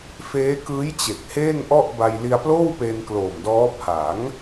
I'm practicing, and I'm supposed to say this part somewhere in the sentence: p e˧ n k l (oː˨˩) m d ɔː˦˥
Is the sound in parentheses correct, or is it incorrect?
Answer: correct